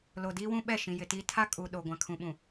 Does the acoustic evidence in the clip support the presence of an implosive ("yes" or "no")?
yes